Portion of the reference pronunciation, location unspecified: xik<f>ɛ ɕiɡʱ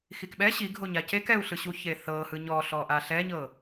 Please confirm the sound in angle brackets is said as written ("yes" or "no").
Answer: no